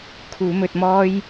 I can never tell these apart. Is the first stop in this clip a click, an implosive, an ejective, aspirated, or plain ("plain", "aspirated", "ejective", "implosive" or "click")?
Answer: aspirated